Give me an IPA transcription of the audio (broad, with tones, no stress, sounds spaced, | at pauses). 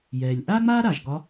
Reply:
j ɛː˩ lʲ ʔ aː˥ ŋ͡m aː˥ ɾ a˩ ʒ ɡ ɒ˧˥